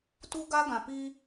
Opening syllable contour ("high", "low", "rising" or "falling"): high